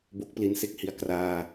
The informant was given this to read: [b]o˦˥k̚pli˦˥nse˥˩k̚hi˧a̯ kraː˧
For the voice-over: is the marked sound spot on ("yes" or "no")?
yes